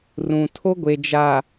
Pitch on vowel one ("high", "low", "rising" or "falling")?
low